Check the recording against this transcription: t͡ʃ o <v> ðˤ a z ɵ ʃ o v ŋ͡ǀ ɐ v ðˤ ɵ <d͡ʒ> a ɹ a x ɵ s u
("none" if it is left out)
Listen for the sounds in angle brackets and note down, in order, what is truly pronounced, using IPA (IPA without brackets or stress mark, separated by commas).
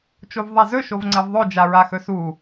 v, d͡ʒ